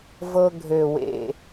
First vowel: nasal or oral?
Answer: oral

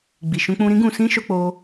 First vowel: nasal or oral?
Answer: oral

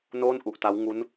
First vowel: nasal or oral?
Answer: oral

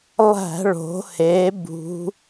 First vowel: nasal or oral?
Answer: oral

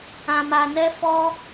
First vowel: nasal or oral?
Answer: nasal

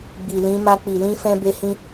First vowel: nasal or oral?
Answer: oral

